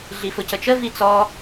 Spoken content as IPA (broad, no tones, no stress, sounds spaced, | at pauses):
ɮ i f ʊ c ə t͡ʃ ə v i t͡s ɔ